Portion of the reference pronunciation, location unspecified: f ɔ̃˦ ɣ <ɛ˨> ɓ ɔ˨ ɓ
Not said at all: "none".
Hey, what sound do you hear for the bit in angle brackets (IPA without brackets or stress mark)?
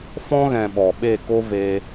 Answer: ɛ̃˨